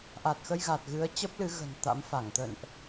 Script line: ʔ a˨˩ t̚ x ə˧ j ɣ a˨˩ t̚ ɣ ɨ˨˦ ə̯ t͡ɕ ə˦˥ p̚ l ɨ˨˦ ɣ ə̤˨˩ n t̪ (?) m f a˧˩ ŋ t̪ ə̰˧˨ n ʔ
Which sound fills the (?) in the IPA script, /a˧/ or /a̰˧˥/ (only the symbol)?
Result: a̰˧˥